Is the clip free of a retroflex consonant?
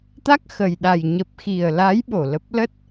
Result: yes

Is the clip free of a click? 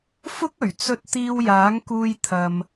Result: yes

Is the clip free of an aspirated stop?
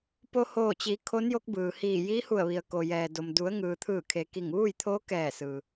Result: no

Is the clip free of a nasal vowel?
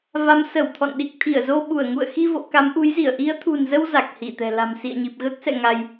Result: yes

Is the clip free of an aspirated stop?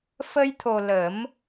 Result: no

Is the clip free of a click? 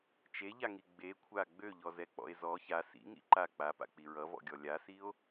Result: no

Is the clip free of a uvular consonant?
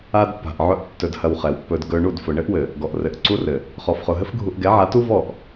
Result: no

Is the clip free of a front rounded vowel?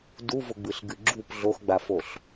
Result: yes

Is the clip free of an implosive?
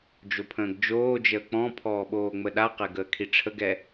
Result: no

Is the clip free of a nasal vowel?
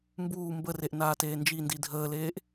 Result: yes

